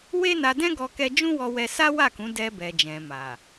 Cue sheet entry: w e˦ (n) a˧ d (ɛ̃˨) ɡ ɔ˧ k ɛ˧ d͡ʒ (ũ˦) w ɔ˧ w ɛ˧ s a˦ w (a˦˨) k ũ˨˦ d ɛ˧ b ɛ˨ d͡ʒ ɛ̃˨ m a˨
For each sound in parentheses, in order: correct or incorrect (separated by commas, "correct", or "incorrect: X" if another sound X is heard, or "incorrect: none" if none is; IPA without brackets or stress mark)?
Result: correct, incorrect: ɛ̃˦, correct, correct